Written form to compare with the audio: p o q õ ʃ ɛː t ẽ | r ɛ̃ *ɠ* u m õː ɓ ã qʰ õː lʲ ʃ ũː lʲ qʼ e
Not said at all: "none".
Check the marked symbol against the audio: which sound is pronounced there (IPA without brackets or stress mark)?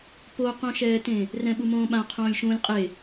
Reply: ɓ